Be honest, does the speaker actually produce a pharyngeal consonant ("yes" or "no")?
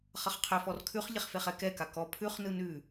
no